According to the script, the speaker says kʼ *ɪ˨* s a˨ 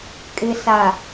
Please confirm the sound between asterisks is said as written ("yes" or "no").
yes